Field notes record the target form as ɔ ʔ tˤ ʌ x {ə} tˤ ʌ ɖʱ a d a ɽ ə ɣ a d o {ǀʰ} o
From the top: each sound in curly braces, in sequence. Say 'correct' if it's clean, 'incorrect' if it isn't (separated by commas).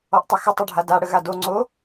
correct, incorrect